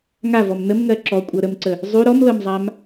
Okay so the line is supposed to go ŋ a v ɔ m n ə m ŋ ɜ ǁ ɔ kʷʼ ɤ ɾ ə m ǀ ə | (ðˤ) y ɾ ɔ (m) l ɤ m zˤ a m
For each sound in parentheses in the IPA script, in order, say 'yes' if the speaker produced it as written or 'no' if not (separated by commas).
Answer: no, yes